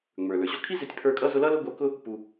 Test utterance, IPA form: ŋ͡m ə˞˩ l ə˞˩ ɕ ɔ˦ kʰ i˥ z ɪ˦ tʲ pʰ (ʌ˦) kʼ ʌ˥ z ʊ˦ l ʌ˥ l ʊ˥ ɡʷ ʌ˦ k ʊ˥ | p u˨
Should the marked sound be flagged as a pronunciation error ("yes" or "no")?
yes